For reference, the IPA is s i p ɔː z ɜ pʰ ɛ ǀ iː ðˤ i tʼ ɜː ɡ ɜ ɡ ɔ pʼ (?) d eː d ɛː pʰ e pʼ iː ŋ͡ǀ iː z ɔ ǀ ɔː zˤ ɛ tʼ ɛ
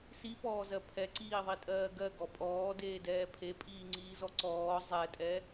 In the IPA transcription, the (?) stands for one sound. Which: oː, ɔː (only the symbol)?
ɔː